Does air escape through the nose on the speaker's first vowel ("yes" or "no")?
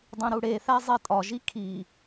yes